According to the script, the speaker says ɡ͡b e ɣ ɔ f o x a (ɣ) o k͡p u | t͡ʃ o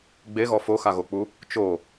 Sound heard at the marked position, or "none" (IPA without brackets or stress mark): ɣ